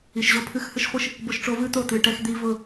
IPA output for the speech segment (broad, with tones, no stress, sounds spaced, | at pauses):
i˨ ʃ ʑ o˦ pʰ ɨ˦ x h ɨ˦ ʃ χʷ ɨ˦ ʃ | b ʊ˦ ʃ ʈ͡ʂ o˦ v ɨ˦ t̪ o˦˨ t̪ ɨ˨ ʈ ɛ˦ x d̪ i˦ v ʊ˦˨